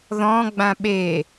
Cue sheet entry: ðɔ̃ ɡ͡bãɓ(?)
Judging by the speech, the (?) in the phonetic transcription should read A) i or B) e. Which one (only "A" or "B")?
B